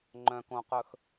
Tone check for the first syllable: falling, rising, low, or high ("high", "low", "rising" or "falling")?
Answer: low